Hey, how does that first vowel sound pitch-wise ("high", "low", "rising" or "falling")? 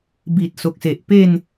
low